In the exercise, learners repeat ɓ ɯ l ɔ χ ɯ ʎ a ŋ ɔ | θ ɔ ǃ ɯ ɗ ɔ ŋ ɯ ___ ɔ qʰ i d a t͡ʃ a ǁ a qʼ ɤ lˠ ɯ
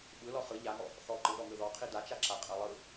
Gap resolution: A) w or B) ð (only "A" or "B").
B